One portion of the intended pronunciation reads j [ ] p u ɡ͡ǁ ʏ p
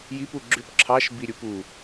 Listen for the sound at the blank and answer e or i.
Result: i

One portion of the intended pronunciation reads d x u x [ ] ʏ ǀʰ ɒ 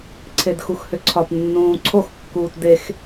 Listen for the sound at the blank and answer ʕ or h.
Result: h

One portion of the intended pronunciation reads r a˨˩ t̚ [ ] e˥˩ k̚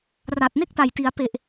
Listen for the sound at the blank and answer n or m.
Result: n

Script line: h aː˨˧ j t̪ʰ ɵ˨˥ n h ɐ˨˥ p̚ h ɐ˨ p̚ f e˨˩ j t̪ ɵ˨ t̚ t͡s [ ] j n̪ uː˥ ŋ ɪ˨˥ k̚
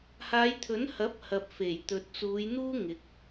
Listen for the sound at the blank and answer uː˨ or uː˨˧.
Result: uː˨˧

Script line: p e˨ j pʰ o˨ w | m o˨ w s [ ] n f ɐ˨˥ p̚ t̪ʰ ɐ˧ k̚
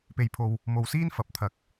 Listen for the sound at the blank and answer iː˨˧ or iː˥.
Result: iː˥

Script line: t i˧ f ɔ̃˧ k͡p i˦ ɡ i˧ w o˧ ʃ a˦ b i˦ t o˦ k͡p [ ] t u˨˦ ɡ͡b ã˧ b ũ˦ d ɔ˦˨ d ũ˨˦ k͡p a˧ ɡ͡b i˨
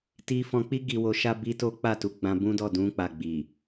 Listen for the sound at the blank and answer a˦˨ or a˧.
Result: a˦˨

